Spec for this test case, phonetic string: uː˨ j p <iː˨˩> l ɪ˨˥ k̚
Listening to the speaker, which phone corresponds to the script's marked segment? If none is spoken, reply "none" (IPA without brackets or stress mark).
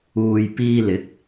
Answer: iː˧